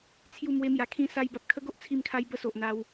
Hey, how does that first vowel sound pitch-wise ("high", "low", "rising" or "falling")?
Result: falling